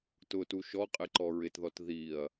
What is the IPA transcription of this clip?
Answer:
t ʊ t u ʃ ɔ qʼ ɪ ǃ ɔ ɹ ɪ t ð ɔ t ð i ɐ̯

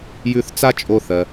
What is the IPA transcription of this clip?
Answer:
j ʉ˧ θ t͡s a˥ t͡ʃʼ o˧ θ ɜ˩

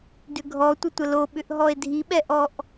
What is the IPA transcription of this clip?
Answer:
d ʏ ɡʱ ɔ tʷ ə tʷ ə l o ɓ ʏ ʔ ɦ ɔ e̯ dʱ i ɓ ɛ ʔ ɔ ʔ

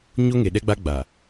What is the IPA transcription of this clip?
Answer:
ɲ o˦ ŋ e˨ ɗ ɛ˦ ɡ͡b a˦ ɡ͡b a˨

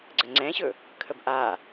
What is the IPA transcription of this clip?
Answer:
ɡ͡ǀ ə ŋ͡ǀ ɛ̃ ɕ ɵ | kʰ ə b ʔ a

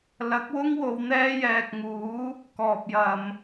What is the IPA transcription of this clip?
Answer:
l ɐ˨˥ k̚ w ʊ˥ ŋ w o˨˧ w n̪ ɛː˥ j ɛː˨ k̚ ŋ uː˨˥ | k ɔː˨ p̚ j ɐ˨ m

